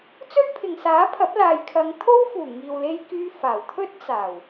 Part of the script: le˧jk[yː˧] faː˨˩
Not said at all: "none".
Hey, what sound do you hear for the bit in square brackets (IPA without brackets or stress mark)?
yː˧